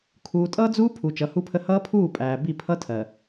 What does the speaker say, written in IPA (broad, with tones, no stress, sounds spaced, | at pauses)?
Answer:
kʰ uː˨ tʼ ʌː˦ d͡z uː˦ pʰ u˨ t͡ʃ ʌ˨˦ h u˦ pʰ ə˦ h ʌː˦ pʰ uː˦˨ pʼ æː˨ b i˦˨ pʰ ʌ˦ tʰ ɜ˨